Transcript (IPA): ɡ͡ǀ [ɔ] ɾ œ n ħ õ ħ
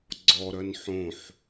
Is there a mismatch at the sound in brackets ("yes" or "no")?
no